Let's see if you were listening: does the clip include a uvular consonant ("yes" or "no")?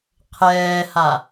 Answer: yes